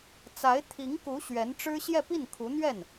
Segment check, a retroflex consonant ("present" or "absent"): present